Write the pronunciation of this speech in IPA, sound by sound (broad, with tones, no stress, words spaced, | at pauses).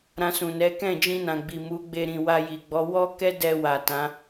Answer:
ɾã˧sũ˨nɛ˨˦ kɛ̃˦˨d͡ʒĩ˧nã˨ ɡ͡bi˨mu˨˦ɡ͡be˧ ɾĩ˨wa˧ji˨ɡ͡bɔ˨˦ wɔ˦kɛ˦ dɛ˧ wa˨tã˨˦